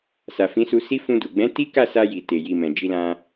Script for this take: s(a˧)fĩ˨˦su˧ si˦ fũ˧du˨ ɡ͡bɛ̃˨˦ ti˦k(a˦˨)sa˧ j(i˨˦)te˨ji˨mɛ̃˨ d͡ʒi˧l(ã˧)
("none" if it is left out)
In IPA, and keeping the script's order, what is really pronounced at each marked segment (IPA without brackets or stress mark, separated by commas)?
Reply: a˨, a˦˨, i˨, ã˧